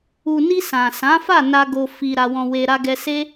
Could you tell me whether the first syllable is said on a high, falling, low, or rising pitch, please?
low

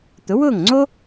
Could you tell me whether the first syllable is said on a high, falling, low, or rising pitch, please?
rising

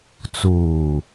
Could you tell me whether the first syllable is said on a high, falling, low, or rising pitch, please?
low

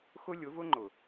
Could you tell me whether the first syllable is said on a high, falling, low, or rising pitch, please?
high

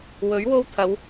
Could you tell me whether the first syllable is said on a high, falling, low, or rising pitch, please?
rising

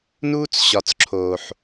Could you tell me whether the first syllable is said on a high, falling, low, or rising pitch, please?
high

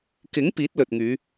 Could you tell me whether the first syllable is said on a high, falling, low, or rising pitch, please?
rising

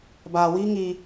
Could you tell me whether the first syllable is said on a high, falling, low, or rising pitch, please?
low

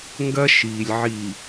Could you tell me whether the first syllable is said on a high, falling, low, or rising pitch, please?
high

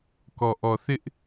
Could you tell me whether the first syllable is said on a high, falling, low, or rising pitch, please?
low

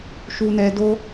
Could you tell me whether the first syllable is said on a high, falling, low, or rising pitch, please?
low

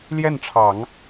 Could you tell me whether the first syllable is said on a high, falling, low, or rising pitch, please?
falling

